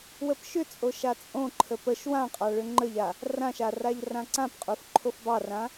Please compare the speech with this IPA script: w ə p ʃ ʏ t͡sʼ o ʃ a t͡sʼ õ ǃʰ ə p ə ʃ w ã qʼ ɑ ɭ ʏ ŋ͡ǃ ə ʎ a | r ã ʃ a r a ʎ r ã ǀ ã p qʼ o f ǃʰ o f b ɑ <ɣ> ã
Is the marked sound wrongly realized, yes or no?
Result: yes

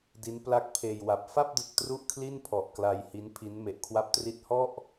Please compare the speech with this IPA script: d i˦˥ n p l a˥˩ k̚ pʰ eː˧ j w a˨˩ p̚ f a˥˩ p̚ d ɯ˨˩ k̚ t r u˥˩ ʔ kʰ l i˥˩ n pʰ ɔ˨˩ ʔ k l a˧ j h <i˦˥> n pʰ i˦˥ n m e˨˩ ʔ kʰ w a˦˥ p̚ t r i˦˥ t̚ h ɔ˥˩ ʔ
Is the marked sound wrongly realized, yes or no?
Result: no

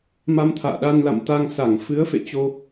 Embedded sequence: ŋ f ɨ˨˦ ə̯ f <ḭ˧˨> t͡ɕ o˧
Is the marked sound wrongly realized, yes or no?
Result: yes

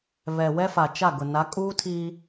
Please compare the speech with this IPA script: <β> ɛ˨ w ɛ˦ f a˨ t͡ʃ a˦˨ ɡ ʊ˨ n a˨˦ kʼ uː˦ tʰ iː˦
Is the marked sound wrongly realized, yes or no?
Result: no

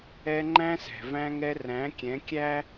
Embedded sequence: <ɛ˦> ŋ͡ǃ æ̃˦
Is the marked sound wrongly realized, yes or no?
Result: no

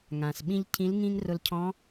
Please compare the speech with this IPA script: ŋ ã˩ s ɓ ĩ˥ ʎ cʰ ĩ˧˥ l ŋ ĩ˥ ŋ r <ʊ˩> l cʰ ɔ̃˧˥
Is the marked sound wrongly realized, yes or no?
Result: yes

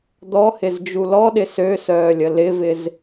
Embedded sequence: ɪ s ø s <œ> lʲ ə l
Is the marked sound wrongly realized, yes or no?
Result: yes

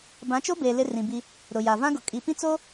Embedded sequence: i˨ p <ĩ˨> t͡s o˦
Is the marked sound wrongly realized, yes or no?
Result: yes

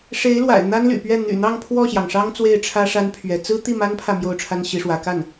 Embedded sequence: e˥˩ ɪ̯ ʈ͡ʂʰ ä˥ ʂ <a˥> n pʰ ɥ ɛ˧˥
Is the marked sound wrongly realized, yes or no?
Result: no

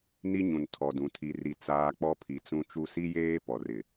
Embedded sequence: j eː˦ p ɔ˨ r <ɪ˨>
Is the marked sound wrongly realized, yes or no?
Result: no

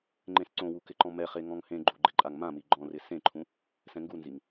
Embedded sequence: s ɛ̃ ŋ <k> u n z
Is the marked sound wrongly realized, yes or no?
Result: yes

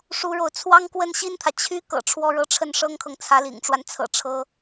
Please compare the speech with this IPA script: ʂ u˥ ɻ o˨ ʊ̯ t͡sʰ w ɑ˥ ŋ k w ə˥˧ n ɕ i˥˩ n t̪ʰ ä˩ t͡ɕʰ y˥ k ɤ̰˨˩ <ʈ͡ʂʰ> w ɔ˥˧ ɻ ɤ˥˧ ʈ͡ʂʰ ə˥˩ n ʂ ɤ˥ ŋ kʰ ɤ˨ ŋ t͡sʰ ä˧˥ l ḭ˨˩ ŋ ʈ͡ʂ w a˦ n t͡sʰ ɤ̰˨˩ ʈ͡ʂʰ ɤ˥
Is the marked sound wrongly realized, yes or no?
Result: no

